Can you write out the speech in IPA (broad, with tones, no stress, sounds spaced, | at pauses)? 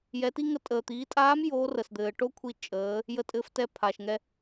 j ɛ˩˧ t i˥ ŋ ə˧˥ tʼ əː˩ t̪ iː˩˧ tʼ aː˧˥ m j oː˧˥ r ə˩ s d̪ ɘː˩ ʈ o˥ kʷʰ i˧ t͡ʃʼ əː˩˧ | j ə˧ tʼ ɘː˧ f t ɛ˧ pʰ aː˩ ʃ ŋ ɛ˧